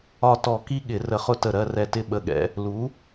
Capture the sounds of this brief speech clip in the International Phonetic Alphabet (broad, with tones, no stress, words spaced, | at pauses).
ɒ˧˩tɔ˧˩˧ ki˦ɠɪ˧˩˧ rə˧˩χʊ˥˨tə˧˩ ɾɜ˥˨rɛ˧˩tɪ˥˨ ɓə˧˩ɠɛ̰˩˥ | lu˩˥